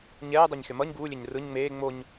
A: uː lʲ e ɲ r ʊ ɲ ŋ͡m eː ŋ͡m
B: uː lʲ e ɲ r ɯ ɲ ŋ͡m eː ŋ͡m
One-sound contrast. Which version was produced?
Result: B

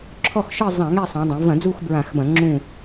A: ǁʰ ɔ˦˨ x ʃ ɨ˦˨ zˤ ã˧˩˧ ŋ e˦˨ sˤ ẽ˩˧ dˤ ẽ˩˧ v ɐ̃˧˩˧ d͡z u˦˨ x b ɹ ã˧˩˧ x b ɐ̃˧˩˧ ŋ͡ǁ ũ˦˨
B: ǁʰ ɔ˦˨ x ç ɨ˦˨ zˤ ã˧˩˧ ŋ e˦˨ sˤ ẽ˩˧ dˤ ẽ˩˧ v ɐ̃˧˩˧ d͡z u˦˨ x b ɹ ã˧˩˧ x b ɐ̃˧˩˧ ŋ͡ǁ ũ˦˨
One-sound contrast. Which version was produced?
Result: A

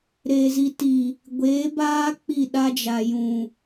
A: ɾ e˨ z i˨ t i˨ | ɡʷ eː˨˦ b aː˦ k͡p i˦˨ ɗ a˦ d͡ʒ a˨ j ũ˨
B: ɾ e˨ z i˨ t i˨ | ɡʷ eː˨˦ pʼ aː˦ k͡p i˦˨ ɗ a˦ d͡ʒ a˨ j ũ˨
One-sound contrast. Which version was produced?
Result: A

